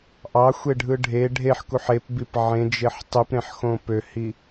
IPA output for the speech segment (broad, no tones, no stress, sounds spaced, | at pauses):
ʔ ɑ xʷ e ɖʱ ɯ ɖʱ e ɖʱ e ħ k u ħ e p b i p ʕ ẽ d͡ʒ e ħ tˤ y p ɾ ẽ ħ x õ p ø h i